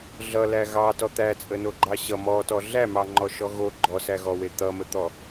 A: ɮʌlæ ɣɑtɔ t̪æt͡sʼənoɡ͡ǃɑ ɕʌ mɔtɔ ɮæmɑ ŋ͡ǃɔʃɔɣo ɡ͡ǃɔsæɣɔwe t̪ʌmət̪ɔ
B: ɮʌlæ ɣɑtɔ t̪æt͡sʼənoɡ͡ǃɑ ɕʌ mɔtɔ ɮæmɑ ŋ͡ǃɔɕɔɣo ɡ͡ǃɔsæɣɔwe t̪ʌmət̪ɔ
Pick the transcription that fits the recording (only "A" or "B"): A